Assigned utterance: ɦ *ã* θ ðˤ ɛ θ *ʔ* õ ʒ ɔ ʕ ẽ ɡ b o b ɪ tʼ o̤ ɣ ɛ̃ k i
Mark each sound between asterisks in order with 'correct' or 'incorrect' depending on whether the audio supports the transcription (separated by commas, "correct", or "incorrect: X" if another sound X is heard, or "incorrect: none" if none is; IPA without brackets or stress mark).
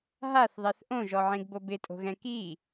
incorrect: a, correct